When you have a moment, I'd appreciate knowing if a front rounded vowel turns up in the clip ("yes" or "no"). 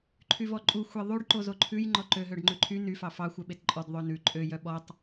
yes